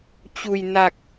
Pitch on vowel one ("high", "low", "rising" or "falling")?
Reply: low